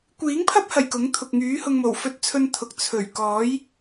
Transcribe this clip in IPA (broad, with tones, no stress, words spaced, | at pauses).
kʷiː˨˥ŋpʰɐ˥p̚hɐ˨˩j kʊ˨˥ŋ t̪ʰʊ˨k̚ŋyː˨˥hʊ˧ŋmo˨˩w fɵ˧t̚t͡sʰɵ˧n t̪ʰʊ˨k̚t͡sʰɵ˨˩ɥ kɔː˨˥j